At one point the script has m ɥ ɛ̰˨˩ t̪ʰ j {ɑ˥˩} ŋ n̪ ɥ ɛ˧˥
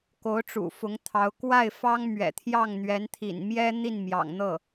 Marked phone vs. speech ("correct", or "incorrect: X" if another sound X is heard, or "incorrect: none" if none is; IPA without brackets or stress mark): correct